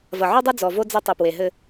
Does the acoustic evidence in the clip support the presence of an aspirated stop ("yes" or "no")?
no